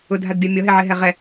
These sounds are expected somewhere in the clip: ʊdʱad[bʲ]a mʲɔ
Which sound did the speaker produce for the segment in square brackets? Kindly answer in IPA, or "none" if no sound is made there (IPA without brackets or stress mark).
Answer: bʲ